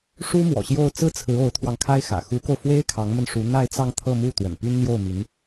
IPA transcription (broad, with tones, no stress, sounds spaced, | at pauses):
ʂ u˥ m w ɔ̰˨˩ ɕ j o˥˧ ʊ̯ t͡s ɹ̩˥˩ t͡sʰ ɹ̩˧˥ o˧˥ ʊ̯ t̪ʰ w ɑ˧ ŋ kʰ a˥ ɪ̯ x ä̰˨˩ x u˧˥ k o˧ ʊ̯ f w e˥ ɪ̯ kʰ ɑ˧˥ ŋ m ə˧ n ʂ u˧˥ n̪ a˥˧ ɪ̯ t͡s ɑ˥˧ ŋ t̪ʰ ɤ˥˧ m u˥˩ t̪ w ə̰˨˩ n p y˥ n n̪ j o˥˩ ʊ̯ m y˧˥ n